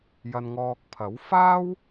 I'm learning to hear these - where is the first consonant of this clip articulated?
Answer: palate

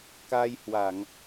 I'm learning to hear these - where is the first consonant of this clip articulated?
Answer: velum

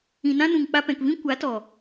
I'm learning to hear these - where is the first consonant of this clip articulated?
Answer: tongue tip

